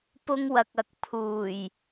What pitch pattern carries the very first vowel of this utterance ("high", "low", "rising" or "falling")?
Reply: high